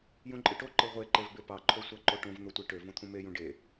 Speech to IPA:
jũǃʼɯʈo ǃɯʁʷe ǃevbepɑ ǃʰosʷæǃoʈõv n̪otʷeʈø võt̪ʰũme jũɖe

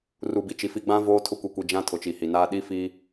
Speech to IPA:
ru˨bi˨t͡ʃi˨ fi˨ɡ͡bã˦ voː˦tʰʊ˦kʷi˨kʷi˨ d͡ʒã˦ tʰʊ˨t͡ʃi˨hi˨naː˦ ɗi˦fi˦

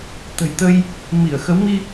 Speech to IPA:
t̪ə̤˨˩jt̪ə˧j | mi˧˩ə̯ xə˨˦w mi˧

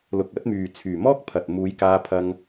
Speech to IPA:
lʊ˨k̚ɐ˨˥t̚myː˨ t͡sʰyː˨mɔː˥k̚pʰɐ˨t̚ muː˨˧jkaː˧pʰɐ˧ŋ

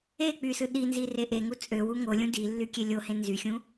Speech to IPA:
e k͡pysɯ ɗinzi reʔeŋu t͡sʼøwu ŋolʲũ dilːy kʲelʲohẽ nzyxʲũ

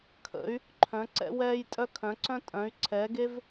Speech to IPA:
kʰə̰˩˥y̯ | ǃʰœ̃˩˥ǀɛ̰˦wɛː˦jtʼœ˦ kʰœ̃˩˥ǀœ̃˦tʼœ̃˩˥y̯ ǀʰɛː˩˥ɡe˦v

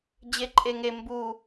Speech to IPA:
d͡ʑeǃʼeŋe mbu

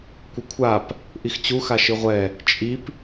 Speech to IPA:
kʷɘkʷʰap | ʔixt͡ɕuxa ʃɨʁʷɛ | t͡ʃʼip

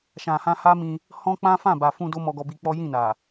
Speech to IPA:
ʃã˨hã˧ha˦mĩ˧ | hɔ̃˦k͡pã˦ fã˦˨ba˨fũ˧ do˦mɔ˧ɡɔ˧bi˧ k͡pɔ˦jĩ˦˨na˨

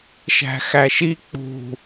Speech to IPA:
ʃæ̤xæʃi k͡pṳ

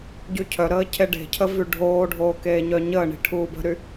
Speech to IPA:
ɟycʰœɾəː cʰeɖe̤cʰə vyɖʱoːɖʱoː keːɲœɲəːɳi̤ ʈʰuːbə̤ɾy

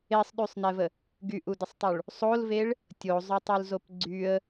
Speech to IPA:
esˤɗysˤnɛvə | ɡyʔudəsˤtˤuɭ | sˤolveɭ | tʲozˤœtˤulzop ɡ͡ǀyə̯

